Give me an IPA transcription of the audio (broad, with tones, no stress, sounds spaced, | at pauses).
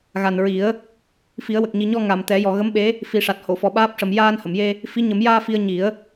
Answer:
ɣ a˨˩ n ɹ i˨˩˦ ə̯ | f i˨˩˦ ə̯ w ə˨˩ k̚ ɲ i˨˩ ɲ ɔ˧ ŋ a˨˩ m t̪ ɛ˨˩˦ j ɔ˨˩ ɣ ə˧˥ m ɓ e˧˥ | f i˨˩ ʂ a˨˩ t̚ h o˨˩˨ f ɔ˨˩ ɓ aː˦˥ p̚ ʂ ə˨˩ m j aː˧ n h ə˨˩˨ m j e˧ | f i˧˥ ɲ ə˨˩˦ m j aː˧ f i˧ ə̯ ɲ i˨˩˦ ə̯